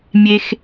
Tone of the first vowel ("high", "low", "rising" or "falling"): low